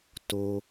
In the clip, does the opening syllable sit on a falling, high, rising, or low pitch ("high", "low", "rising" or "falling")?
high